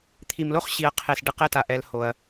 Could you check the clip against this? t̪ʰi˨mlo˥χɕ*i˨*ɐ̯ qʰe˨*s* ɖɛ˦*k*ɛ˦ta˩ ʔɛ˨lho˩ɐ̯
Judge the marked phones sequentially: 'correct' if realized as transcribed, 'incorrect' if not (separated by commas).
correct, correct, incorrect